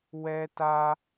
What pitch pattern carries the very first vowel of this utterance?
high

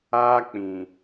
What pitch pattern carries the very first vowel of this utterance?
high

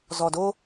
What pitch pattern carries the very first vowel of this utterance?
low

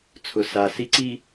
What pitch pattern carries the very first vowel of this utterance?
low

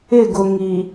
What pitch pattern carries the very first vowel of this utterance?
falling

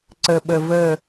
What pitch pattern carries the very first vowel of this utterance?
low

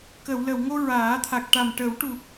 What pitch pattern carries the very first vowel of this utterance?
low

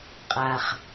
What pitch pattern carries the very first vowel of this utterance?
low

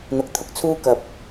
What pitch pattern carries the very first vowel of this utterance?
low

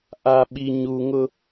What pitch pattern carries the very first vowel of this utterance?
low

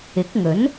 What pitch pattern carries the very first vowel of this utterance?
rising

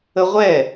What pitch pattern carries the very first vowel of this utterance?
high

